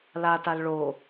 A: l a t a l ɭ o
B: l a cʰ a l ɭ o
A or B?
A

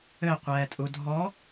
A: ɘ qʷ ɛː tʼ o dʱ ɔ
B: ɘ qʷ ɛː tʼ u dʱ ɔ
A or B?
B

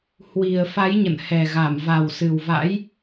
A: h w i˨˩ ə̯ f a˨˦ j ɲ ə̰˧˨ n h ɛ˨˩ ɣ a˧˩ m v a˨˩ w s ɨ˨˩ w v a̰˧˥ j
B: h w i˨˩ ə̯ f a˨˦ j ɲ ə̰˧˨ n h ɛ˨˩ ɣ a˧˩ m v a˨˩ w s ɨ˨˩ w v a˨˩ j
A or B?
A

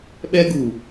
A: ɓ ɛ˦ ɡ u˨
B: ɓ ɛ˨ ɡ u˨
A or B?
A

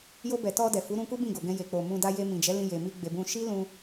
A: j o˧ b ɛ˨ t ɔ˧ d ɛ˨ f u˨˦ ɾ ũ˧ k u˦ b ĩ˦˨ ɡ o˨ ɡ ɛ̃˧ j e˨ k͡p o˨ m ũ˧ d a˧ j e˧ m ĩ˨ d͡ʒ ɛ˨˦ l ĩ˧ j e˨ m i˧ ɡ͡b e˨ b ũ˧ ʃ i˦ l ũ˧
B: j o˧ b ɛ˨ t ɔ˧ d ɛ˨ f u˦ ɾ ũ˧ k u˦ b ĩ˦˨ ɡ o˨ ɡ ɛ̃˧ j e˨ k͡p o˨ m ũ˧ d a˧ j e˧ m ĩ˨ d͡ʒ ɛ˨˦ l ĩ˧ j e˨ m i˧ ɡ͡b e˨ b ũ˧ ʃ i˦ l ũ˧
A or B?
A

